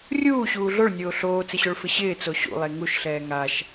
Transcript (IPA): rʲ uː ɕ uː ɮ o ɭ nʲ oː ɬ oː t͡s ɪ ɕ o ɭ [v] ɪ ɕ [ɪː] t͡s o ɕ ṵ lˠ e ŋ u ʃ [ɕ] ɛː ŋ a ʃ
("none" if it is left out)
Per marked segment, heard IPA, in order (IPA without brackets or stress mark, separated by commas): f, ɪː, ɬ